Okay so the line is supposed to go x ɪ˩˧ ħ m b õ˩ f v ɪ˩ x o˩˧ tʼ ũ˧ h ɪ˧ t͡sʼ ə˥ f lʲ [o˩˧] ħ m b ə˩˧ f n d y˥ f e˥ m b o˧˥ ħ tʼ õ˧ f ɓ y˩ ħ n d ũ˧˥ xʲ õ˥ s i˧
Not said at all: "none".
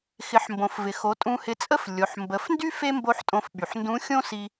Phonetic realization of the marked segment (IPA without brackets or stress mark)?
o˩˧